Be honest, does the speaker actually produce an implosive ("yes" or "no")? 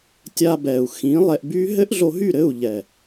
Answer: no